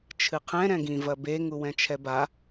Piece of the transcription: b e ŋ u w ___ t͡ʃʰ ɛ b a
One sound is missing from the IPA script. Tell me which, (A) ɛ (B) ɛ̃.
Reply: B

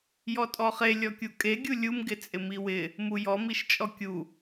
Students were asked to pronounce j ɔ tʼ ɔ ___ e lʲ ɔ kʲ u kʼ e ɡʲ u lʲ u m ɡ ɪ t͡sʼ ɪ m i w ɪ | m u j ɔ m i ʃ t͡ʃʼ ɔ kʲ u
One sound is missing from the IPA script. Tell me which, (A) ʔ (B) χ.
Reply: B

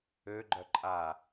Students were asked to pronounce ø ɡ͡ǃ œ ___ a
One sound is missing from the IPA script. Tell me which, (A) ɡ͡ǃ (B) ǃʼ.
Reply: B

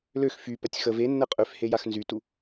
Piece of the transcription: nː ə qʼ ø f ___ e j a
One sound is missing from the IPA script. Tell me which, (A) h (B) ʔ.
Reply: A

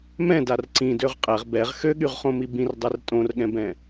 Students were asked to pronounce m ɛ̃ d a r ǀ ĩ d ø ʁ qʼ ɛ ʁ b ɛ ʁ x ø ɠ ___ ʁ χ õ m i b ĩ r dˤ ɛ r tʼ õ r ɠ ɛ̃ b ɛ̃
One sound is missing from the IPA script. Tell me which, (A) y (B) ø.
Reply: A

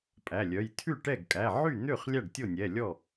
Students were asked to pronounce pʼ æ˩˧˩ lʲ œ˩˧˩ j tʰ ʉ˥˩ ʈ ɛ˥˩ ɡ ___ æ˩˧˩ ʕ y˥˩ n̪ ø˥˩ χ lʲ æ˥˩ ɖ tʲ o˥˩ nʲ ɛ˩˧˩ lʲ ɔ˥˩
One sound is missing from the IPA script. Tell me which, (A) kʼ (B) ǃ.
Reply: A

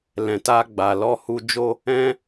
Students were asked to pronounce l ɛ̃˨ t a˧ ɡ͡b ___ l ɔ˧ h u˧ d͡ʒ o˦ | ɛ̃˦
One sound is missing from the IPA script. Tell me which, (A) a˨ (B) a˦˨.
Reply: A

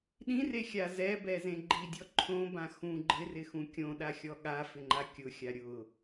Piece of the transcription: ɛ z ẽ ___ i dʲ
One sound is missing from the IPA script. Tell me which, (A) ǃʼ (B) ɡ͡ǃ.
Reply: B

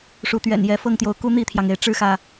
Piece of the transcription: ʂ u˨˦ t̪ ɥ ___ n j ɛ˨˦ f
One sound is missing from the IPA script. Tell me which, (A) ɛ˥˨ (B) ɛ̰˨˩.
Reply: B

